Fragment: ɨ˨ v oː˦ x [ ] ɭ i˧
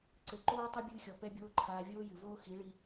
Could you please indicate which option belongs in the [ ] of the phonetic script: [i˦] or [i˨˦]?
i˨˦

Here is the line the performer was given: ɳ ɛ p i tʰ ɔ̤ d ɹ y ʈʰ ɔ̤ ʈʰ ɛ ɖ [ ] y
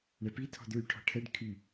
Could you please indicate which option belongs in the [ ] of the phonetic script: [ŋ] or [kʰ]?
kʰ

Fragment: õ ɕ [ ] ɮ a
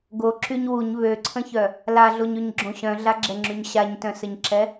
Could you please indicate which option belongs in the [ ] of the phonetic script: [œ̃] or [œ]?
œ̃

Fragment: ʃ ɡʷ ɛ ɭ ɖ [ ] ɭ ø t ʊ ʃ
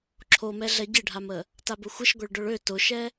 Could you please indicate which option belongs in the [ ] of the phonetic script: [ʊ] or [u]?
ʊ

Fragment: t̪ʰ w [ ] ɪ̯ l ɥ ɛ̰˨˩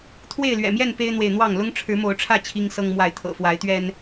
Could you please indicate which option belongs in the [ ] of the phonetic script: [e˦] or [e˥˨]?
e˥˨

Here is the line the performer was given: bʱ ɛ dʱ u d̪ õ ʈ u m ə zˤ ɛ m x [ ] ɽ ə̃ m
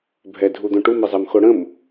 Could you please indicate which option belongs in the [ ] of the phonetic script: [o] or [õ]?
o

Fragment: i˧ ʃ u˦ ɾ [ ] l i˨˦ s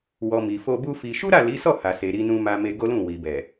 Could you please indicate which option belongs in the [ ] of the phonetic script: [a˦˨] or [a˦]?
a˦˨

